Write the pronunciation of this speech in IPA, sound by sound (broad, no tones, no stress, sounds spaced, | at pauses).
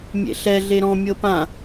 mʲ ḛ ɬ ɛ ɮ e ɾ ɔ̃ mʲ ɤ p ã